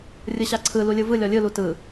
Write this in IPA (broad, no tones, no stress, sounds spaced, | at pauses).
rʲ ɯ ɕ a ǀʰ ɯ l u lʲ ɯ v ɯ lʲ ɔ lʲ ɯ l u t ɯ